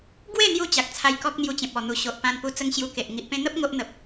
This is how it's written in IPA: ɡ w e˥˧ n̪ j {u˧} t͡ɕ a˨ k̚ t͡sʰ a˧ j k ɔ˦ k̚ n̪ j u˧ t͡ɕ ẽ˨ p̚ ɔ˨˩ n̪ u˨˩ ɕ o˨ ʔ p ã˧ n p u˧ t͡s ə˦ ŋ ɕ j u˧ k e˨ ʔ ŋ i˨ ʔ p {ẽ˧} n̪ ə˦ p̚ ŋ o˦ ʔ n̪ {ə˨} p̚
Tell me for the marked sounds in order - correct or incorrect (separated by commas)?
correct, correct, correct